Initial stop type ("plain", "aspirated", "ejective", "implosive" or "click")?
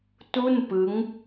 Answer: plain